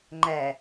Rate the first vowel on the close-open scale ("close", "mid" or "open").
open